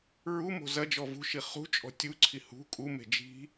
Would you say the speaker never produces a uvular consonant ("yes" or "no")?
no